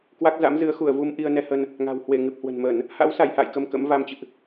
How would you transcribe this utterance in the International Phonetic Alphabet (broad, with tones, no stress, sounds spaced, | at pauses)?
k w a˦˥ k̚ z a̰˧˥ m z ɨ˨˦ ə̯ x u˧˩ ə̯ v u˧ m ʔ i˧ ə̯ n ɛ˧ h ə˧ n | ŋ a̤˨˩ w h w e˧˩ ŋ ɨ˨˩ p̚ h w ə̤˨˩ n m ə˧˩˨ n | h a̰˧˥ w s a˧˩ j h a̰ː˧˨ j k ə˧ m k ə̰˧˥ m v a˧ m t͡ɕ ɨ̰˧˨ ʔ